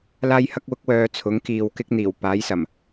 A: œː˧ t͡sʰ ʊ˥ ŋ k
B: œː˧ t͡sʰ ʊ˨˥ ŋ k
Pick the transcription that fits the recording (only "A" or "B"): B